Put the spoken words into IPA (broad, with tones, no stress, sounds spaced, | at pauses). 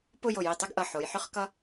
p ʊ˥˧ j o˧˩ j i˧˩ tˤ ʏ˥˧ ɡ ʔ ʌ˧˩ ħ o˩˧ j ħ ʏ˥ χ k ʌ˥